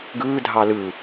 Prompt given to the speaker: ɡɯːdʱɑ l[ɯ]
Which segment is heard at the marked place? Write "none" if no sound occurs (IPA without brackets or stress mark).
ɯ